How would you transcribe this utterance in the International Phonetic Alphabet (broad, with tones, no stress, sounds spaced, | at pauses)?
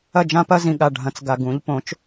ɐ˦˨ d͡ʒ ã˦ p ɐ˦ z ĩ˨ ɠ a˨ ɖʱ ɐ̃˨ t͡s ɡ a˨ ɡ ũ˨˦ ʎ p õ˨˦ t͡ʃ